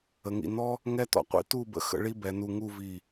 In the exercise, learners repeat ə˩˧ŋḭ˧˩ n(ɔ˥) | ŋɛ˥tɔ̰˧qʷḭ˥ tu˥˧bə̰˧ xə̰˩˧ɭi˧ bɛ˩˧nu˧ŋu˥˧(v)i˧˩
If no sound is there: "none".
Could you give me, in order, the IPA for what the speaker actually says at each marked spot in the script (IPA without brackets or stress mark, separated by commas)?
ɔ˥, v